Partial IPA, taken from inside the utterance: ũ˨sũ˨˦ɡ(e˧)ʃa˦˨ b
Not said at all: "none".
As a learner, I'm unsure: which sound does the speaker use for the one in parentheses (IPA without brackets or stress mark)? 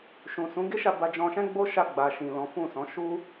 e˦